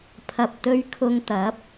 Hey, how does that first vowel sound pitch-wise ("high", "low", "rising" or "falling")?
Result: low